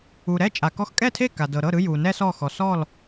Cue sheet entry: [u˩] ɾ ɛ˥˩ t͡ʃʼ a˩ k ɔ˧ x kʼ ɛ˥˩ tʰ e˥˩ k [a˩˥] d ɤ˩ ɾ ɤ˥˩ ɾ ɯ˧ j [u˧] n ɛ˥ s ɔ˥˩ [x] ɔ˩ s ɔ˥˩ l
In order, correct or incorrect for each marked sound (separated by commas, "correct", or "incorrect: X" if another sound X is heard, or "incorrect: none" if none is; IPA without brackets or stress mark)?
correct, incorrect: a˩, incorrect: u˩, correct